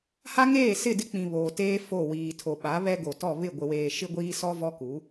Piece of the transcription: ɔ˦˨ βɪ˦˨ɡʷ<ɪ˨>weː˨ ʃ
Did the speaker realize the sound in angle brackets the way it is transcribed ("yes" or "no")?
yes